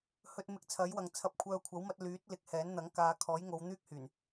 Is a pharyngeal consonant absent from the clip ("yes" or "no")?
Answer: yes